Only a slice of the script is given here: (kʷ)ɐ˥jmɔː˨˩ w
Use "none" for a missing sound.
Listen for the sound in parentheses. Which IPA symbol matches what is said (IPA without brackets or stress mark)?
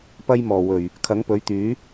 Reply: p